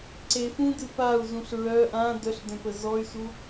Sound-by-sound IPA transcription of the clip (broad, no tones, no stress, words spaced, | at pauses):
ǀefũdɨ pau̯zũɬ ɹœ ʔã dœɬdœ̃pə zɔy̯su